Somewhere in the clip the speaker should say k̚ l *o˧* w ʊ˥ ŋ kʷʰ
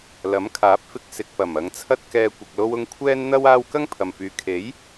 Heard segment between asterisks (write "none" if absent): o˥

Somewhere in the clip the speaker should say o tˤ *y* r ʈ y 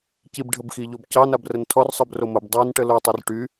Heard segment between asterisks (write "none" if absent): y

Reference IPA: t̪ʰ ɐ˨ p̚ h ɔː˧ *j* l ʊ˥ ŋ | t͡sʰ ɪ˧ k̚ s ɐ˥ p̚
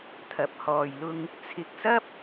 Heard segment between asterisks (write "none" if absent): j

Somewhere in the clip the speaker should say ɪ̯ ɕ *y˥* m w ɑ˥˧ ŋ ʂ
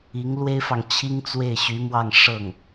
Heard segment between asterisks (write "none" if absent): y˧˥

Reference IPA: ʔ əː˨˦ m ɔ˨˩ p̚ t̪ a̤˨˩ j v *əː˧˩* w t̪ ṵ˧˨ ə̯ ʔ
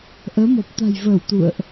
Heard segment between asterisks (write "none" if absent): əː˧˩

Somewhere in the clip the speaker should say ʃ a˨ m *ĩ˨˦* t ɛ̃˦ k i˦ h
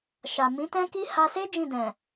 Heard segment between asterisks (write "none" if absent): ĩ˨˦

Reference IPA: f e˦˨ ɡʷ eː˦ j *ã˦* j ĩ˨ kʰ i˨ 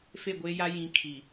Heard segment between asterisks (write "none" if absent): a˦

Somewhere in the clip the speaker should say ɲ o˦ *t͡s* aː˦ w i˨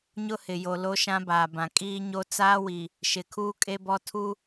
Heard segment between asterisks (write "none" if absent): t͡s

